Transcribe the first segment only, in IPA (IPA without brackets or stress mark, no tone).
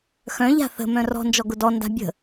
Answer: x